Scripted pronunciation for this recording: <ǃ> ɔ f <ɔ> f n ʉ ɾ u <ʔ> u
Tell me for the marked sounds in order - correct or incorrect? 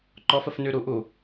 correct, incorrect: ə, correct

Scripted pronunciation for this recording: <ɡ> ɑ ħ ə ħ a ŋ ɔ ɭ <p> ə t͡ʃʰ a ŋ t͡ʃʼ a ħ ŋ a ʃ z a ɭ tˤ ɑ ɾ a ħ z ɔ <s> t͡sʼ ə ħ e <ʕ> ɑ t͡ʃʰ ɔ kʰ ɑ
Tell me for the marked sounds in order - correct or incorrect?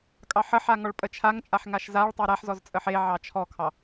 incorrect: kʼ, incorrect: pʼ, incorrect: z, correct

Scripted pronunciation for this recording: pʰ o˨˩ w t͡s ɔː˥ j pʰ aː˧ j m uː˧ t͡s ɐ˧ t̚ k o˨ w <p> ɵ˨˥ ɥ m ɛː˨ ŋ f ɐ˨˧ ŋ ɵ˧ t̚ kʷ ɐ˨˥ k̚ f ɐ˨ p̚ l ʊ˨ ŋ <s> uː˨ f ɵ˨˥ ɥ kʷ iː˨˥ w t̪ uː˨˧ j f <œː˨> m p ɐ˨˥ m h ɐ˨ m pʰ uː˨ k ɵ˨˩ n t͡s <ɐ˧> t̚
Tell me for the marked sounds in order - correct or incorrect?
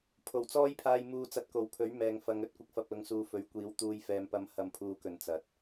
incorrect: pʰ, correct, incorrect: ɛː˨, incorrect: ɐ˨

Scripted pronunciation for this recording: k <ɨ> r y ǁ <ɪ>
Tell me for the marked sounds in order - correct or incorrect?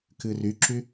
correct, incorrect: y

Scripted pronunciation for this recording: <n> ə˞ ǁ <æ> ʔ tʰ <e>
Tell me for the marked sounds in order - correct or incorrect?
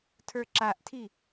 incorrect: tʰ, incorrect: a, incorrect: i

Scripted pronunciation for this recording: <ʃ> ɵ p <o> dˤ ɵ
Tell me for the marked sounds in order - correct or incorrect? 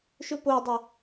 correct, correct

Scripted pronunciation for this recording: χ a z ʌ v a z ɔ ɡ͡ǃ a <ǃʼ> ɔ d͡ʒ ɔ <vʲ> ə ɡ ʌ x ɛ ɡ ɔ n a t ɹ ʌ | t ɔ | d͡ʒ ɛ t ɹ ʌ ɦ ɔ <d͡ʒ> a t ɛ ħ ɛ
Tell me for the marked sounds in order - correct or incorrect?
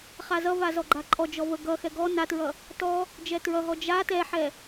correct, incorrect: v, correct

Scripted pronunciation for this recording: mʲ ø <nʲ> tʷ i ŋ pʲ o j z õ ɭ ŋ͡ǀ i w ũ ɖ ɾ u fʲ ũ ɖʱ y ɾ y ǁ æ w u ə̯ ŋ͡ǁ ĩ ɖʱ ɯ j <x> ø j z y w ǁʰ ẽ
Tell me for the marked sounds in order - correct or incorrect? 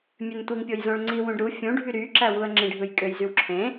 incorrect: n, incorrect: kʼ

